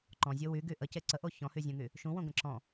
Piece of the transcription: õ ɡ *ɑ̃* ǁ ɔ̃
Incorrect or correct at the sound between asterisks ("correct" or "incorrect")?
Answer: incorrect